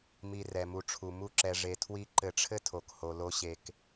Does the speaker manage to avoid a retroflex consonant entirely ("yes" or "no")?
no